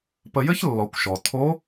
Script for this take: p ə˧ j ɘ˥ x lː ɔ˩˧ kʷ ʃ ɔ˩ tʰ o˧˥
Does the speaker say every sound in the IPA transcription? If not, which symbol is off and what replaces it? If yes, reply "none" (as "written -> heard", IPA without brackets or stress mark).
x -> ç